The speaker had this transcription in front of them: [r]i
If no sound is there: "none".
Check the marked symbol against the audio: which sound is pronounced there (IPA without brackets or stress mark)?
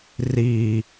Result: r